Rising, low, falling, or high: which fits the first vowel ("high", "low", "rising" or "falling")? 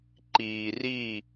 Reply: low